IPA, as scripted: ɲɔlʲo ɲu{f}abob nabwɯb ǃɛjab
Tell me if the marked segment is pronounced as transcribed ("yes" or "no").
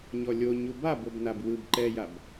no